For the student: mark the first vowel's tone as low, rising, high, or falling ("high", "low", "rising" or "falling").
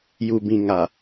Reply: low